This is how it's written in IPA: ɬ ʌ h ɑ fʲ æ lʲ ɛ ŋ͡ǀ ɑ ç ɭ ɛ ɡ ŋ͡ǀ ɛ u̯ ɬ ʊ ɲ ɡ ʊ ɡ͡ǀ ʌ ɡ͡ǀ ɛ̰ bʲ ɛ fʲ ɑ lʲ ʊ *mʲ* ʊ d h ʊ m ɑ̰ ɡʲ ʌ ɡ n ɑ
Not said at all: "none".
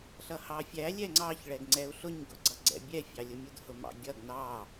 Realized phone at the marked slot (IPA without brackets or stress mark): mʲ